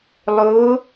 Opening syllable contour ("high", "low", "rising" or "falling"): rising